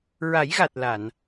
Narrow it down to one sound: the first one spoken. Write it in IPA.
ɹ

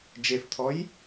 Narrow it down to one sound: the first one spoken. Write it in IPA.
d͡ʒ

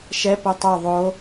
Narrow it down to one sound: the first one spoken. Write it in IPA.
ʃ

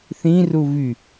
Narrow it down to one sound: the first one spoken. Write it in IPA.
θ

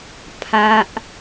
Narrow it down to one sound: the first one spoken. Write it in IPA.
pʰ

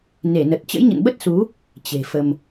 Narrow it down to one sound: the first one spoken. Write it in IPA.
n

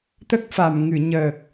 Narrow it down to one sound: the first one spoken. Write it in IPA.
t̪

